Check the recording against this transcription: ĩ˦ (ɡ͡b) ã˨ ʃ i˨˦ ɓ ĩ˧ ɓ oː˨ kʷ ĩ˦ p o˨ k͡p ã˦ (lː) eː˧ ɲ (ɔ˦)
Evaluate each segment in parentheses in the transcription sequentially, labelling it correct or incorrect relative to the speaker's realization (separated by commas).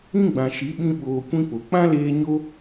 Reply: correct, incorrect, incorrect